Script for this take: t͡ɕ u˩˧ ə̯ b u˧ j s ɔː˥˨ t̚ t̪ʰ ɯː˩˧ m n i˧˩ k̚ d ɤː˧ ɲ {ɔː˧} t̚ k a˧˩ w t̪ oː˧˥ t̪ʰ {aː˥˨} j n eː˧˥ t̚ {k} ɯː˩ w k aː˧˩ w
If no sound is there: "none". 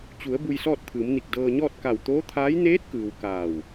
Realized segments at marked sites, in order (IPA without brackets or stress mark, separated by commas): ɔː˥˨, aː˧˥, k